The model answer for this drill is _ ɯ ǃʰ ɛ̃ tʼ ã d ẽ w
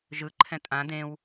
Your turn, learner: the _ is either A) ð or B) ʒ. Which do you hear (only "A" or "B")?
B